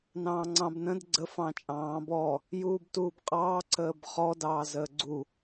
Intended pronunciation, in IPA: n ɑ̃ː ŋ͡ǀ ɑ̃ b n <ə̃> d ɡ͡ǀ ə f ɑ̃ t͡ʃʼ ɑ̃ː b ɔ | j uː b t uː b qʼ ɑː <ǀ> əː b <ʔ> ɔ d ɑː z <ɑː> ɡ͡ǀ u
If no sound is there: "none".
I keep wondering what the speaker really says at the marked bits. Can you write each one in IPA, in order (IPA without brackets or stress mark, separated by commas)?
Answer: ə̃, ǀ, χ, əː